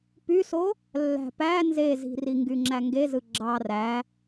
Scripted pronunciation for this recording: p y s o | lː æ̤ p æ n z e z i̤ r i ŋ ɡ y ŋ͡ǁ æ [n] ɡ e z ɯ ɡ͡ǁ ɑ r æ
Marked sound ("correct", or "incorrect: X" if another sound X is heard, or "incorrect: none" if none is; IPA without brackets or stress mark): incorrect: ŋ